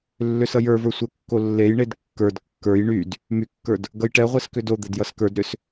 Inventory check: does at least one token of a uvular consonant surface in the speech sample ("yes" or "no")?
yes